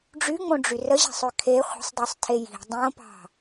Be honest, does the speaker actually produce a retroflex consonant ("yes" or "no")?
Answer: yes